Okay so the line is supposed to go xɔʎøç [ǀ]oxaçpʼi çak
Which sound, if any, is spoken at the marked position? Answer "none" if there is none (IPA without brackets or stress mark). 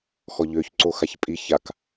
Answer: ǀ